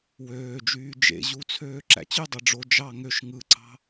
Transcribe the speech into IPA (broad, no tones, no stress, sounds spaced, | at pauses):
w øː d͡ʒ yː d͡ʒ ḛ ʑ u t͡sʰ øː ǁ æ̰ t͡ɕ y dˤ ɑ ɖ͡ʐ o d͡ʒ ɑ ŋ ø ʃ ŋ ɯ ǀ ɑ̤